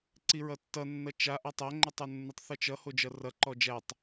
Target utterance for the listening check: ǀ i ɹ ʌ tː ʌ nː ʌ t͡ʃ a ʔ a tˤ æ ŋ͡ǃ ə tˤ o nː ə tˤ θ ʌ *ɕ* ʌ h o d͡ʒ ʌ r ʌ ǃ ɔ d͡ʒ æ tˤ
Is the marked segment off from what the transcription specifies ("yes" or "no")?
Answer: yes